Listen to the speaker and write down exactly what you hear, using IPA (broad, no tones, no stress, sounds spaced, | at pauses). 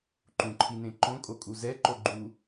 ǃ ũ ǃʰ i n ẽ ǃ õ kʼ o kʼ u z ɛ ǃ o ɡ͡ǃ u